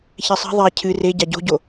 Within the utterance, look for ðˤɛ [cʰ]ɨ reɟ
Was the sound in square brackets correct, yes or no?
yes